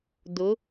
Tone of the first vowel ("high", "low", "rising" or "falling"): rising